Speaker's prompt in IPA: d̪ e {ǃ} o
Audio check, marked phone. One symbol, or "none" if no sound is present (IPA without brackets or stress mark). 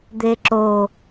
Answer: ǁ